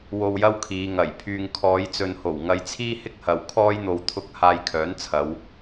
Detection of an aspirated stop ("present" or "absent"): present